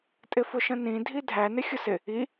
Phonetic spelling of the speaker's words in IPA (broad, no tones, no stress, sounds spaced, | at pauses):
tʼ ɪ f ʊ ʃ ə̃ n ĩ dʱ i dʱ æ n ɪ xʲ ʊ s ɪ | i